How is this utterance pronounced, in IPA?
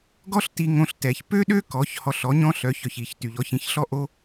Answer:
ɡ ɔ˥ ɬ t i˧ ŋ õ˧ ɬ t ɛ˩ ç p ø˥ ɗ ø˥ k ɔ˩˥ ç h ɔ˧ ɬ ɔ˩˥ ɲ ɔ̃˥ ɬ œ˩˥ ç œ˩ ç i˩ ç t y˩ ʎ ɔ˩˥ ç ĩ˩˥ ç ɬ ɔ˥ ʔ o˥

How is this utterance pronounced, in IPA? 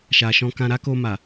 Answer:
ʃ a˨ ʃ ɔ̃˧ k ã˧ ɾ a˦ k o˧ m a˨

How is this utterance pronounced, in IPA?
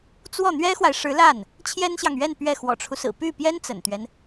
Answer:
t͡s w ɔ˥˩ n̪ ɥ ɛ˥ x w a˨ ɪ̯ ʂ ɻ̩˧˥ l a˥˩ n | t͡ɕʰ j ɛ˥ n ɕ j ɑ˨ ŋ ɥ ɛ˥˧ n p ɥ ɛ˥˩ x w ɔ̰˨˩ ʈ͡ʂʰ u˦ s ɹ̩˨˩ p y˥˩ p j ɛ˥ n t͡s ə̰˨˩ n t̪ ɥ ɛ˦ n

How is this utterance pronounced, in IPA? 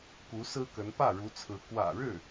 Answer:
k u˧˥ s ɹ̩˥ k ə˧˥ n p ä˥˩ ɻ u˧˥ t͡sʰ ɹ̩˧˥ k w ä̰˨˩ ɻ ɻ̩˥˩

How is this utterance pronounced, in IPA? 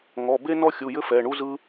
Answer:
ŋ ɔ˩˧˩ b e˥ n ɔ˥ xʲ u˩˧˩ j ɘ˥ f ɛ˩˧˩ ɳ u˥ z ɯ˥

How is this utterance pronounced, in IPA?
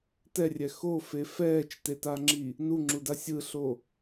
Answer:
t ɛ rʲ ɛ x o f e f ɛː t͡ʃ t e t a ŋ͡ǁ i | n u ŋ͡ǁ u d a sʲ ɯ ɬ o

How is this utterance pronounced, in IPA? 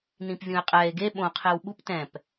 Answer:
n ĩ p vʲ ũ e̯ qʼ ɛ e̯ ɡ e ɓ õ qʰ e w ɓ u p t ɛ̃ p

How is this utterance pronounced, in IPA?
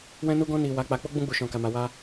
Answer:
w ɛ̃˧ n u˧ ɡ ɔ̃˧ n i˨ w a˨˦ k͡p a˧ k͡p o˦ ɡ͡b ũ˦ ɡ͡b u˦˨ ʃ ɔ̃˧ k a˧ m a˧ w a˧

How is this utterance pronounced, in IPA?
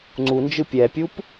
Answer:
ŋ͡ǀ u n d͡ʒ ɯ pʲ ɛ pʲ u p

